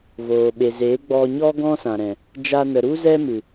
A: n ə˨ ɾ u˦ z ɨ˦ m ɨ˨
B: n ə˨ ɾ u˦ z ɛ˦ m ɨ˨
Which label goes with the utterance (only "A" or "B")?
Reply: B